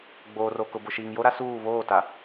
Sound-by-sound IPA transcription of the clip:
ɡ͡b oː˨ r o˨ k ʊ˨ b ʊ˨ ʃ iː˨ ŋ j o˦ ɾ a˦ s uː˦˨ β oː˦˨ t a˨

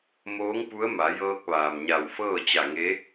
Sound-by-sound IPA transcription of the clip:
m oː˧˥ ŋ p u˧˥ ə̯ m a˩˧ j ɤː˧ k̚ ʋ aː˩ m ɲ a˧˩ w f ɤː˥˨ t͡ɕ a˧˩ ŋ e˧˥

